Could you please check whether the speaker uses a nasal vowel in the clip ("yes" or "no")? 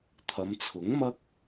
no